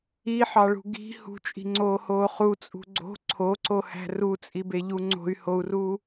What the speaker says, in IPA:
i ħ ɑ ɭ ṳ ɡ i̤ h ṳ t͡ʃʼ i̤ ŋ͡ǀ oː h oː χ u t͡sʼ ṳ ɡ͡ǀ o̤ ǀʰ o ǀ o h æ̤ r u t͡sʼ i b e ʎ u ŋ͡ǀ o̤ y̯ h o u̯ r uː

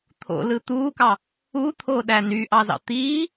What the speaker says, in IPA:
t̪ʰ o̰ l ɯ t̪ uː k ɑ | u t̪ʰ o ɗ æ n y ʔ ɑ z ɑ̰ t̪ iː

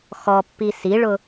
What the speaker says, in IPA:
x ɔ pː i s i ɭ ʊ

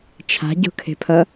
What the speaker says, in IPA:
t͡ʃʰ a̤ ɟ o̤ kʰ e̤ pʰ ʌ

